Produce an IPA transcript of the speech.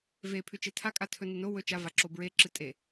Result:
v e pʰ ʉ t͡ʃ e tʰ a kʼ a tʰ ɵ n ɨ n o w ɵ t͡ʃ a v a ǁ o b ɹ e ǁ ɨ tʼ e

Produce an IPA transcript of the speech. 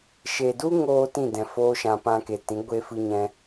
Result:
ʃ e˨ d u˦ ŋ oː˦ t ĩ˦˨ d ɛ̃˨ f oː˦ ʃ ã˧ p ã˧ k e˨ t ĩ˨˦ ɡʷ e˦ f ɨ˦ ɲ ɛ̃˦

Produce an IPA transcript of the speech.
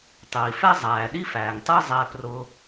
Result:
tˤ iː˨ f ɛ˥ zˤ æː˨ ɗ i˥ f æː˨ ŋ tˤ iː˥ zˤ ɛː˦ p r ʊ˦

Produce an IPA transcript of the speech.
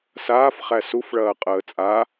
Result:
s aː f χ æ s u f ɭ ɐː qʼ əː t͡sʼ a

